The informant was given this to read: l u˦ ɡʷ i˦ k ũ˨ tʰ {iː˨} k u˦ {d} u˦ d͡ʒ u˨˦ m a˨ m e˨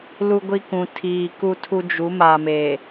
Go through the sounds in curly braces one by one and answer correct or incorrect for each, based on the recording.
correct, incorrect: tʰ

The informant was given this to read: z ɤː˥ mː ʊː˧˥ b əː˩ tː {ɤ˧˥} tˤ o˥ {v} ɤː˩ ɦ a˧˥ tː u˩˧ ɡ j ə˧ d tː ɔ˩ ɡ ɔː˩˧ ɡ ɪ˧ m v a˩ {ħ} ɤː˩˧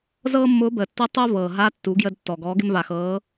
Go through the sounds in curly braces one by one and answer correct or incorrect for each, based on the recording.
correct, correct, incorrect: x

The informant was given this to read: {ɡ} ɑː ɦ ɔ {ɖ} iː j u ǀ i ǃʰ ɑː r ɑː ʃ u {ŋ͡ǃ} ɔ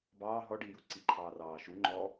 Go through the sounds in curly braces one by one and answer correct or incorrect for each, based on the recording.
incorrect: b, correct, correct

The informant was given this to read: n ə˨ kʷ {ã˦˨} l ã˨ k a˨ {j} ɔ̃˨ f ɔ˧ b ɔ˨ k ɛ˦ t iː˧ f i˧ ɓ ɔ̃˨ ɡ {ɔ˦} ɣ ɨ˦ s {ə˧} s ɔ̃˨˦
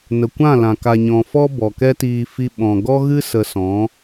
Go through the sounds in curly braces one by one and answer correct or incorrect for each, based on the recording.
correct, incorrect: ɲ, correct, correct

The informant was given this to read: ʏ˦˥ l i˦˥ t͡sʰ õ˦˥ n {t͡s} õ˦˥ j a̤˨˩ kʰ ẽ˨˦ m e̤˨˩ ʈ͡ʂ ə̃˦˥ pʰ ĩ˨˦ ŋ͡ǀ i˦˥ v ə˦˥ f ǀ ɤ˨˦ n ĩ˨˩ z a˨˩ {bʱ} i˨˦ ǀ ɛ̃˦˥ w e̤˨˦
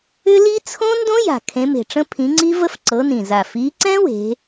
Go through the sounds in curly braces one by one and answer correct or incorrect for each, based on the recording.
incorrect: d, incorrect: f

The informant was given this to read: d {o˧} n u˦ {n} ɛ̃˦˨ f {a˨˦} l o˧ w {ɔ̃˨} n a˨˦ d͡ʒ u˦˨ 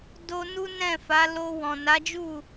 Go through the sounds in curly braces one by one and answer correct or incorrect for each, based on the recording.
correct, correct, correct, correct

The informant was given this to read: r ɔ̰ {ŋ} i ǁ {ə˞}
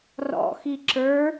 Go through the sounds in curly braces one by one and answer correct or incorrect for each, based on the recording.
incorrect: x, correct

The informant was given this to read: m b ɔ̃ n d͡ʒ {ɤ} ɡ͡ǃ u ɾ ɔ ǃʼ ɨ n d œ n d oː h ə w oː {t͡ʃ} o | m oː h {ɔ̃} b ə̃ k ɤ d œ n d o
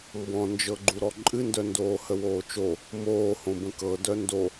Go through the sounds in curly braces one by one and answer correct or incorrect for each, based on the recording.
correct, correct, incorrect: õ

